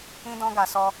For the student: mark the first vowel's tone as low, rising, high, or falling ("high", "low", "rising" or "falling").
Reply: high